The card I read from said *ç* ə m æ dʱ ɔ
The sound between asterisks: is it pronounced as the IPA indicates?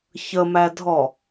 yes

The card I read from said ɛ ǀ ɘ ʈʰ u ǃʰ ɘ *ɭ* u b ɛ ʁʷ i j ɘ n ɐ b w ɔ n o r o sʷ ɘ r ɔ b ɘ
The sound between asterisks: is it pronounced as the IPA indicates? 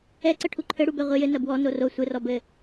no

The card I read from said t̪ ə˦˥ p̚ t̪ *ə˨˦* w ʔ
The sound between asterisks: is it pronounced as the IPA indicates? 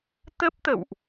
no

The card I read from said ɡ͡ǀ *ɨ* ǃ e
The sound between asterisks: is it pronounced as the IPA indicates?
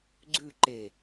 no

